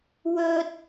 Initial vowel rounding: rounded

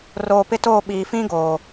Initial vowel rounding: rounded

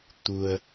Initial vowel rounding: rounded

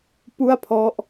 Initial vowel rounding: rounded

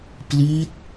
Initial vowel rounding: unrounded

